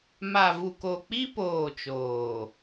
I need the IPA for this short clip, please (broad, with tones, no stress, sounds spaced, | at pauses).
m a˨ v u˨ k o˨ k͡p i˦ p oː˦˨ t͡ʃ oː˨